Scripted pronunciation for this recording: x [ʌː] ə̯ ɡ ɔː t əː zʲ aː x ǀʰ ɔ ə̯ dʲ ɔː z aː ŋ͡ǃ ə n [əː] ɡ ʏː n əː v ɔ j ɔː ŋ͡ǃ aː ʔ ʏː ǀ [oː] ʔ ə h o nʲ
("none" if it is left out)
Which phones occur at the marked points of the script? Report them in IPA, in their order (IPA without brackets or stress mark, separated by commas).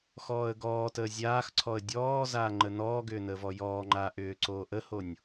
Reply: ɔː, ɔː, oː